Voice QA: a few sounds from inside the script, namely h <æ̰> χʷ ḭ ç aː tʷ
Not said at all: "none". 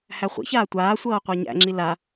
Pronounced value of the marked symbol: æ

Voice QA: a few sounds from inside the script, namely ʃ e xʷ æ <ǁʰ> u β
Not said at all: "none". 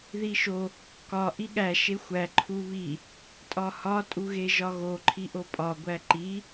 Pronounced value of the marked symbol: ǃʰ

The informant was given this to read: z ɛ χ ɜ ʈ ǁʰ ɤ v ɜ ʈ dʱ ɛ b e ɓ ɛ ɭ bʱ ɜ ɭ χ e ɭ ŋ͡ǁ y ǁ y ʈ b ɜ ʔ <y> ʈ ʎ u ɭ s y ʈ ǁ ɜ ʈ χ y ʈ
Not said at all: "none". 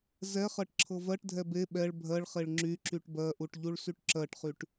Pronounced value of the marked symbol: u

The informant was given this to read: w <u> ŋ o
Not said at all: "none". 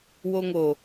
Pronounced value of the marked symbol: o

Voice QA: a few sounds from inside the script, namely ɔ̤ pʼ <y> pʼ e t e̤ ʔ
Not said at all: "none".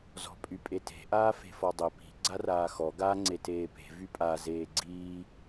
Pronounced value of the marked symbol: y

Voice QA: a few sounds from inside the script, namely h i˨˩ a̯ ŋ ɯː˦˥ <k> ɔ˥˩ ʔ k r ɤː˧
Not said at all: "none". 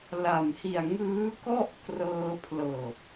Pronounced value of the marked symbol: k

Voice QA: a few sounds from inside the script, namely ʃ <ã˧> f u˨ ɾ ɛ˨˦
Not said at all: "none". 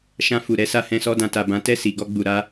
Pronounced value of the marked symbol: ã˧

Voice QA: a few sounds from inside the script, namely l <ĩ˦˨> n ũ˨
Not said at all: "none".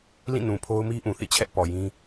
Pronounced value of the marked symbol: ĩ˦˨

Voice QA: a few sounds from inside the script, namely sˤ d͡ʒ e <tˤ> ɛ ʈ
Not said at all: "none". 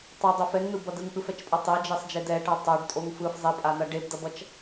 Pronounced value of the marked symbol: d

